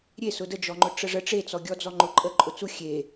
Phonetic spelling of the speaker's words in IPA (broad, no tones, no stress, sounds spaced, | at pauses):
ɾʲ e s ʊ d ə d͡ʒ ɔ ŋ͡ǃ ʊ ʈ͡ʂ ə ʐ ə ʈ͡ʂ e t͡s ɔ ɡʲ ɔ d͡z ɔ ŋ͡ǃ ʊ ǃʼ ə ǃʼ ʊ t͡s u xʲ e